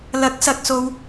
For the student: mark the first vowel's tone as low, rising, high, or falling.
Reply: rising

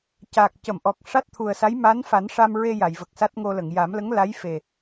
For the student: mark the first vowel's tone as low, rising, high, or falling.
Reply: low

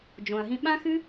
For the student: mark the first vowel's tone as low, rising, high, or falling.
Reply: low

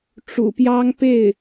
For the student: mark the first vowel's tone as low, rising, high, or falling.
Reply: low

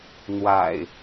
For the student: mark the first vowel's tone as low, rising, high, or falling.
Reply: low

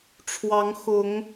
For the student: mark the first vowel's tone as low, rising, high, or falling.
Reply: rising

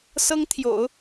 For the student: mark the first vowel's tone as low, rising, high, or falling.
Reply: high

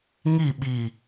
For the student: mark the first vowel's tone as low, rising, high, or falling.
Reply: falling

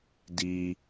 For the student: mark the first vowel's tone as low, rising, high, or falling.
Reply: high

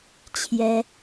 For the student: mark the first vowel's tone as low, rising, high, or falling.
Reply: high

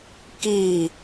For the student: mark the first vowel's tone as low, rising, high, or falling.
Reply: falling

